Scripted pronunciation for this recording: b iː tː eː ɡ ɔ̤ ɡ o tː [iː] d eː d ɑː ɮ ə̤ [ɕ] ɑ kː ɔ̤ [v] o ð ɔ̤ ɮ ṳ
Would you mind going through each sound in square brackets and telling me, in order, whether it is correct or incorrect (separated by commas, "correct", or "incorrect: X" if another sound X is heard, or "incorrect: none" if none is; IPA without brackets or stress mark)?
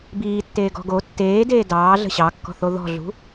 incorrect: eː, correct, incorrect: θ